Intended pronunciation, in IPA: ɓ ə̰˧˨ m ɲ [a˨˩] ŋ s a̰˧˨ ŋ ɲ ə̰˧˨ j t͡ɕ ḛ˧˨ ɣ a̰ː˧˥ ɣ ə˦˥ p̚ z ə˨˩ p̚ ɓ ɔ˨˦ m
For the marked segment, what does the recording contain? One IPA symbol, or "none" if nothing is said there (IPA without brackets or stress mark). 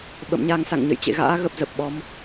a˧